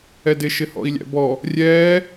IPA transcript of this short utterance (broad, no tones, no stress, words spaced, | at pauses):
ɛdɪ ʃɪhɔ̰i̯lʲæ̰bɔ | rʲɛː